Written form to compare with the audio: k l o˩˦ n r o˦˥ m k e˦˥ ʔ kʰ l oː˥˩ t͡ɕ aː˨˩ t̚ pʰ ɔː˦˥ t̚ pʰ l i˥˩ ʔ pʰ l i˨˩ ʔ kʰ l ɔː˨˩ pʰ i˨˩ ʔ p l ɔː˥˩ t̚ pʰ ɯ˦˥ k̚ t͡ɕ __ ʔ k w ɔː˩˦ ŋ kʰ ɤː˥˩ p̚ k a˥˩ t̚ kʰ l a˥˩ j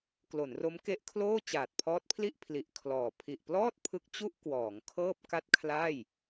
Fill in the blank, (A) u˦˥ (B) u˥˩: B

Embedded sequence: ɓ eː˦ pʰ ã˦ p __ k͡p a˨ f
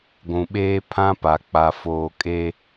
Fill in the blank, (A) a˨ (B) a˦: A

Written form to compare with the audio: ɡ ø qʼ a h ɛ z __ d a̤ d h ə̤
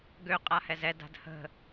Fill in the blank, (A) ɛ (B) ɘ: A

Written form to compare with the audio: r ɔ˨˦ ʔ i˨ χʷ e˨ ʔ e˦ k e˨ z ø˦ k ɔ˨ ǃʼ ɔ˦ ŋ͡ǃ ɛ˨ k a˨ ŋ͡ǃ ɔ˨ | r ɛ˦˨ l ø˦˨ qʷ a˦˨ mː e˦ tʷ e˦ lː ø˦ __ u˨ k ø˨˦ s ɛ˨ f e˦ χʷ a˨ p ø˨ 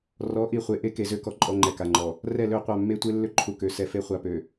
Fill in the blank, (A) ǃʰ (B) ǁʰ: A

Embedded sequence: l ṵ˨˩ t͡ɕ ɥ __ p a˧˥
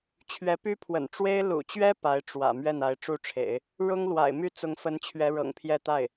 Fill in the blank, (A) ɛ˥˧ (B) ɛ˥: B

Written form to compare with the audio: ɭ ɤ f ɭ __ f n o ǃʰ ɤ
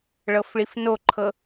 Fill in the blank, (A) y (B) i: B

